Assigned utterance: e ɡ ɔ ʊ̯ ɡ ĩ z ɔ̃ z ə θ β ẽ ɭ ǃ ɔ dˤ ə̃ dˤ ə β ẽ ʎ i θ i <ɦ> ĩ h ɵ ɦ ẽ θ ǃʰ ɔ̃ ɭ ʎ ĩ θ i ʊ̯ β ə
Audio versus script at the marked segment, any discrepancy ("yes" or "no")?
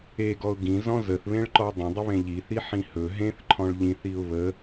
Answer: yes